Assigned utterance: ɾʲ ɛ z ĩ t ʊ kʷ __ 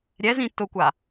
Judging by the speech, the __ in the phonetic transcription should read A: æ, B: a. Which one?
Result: B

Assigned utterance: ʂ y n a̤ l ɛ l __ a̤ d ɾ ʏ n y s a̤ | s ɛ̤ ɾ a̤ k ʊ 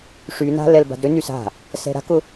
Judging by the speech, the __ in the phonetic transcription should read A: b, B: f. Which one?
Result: A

